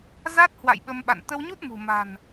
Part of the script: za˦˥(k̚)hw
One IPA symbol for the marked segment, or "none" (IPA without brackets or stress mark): t̚